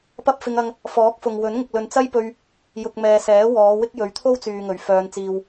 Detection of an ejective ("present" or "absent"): absent